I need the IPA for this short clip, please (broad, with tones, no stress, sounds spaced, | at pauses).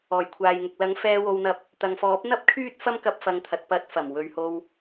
ɔː˨˩ j kʷʰ aː˨ j ŋ ʊ˨ k̚ l ɐ˨˥ ŋ f ɛː˧ w o˧ w n̪ ɐ˧ p̚ | t̪ ɐ˨ ŋ f ɔː˨˥ p̚ n̪ ɐ˥ p̚ kʰ yː˥ t̚ f ɐ˥ m k ɐ˧ p̚ f ɐ˨˧ ŋ t̪ʰ ɐ˨ t̚ p ɐ˨˥ t̚ f ɐ˨˩ m w ɵ˨ ɥ h o˧ w